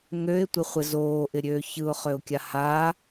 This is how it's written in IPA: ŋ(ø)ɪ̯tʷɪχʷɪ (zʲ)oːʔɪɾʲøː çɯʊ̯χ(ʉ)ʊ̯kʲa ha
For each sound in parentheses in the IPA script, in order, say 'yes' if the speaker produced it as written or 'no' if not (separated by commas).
yes, no, no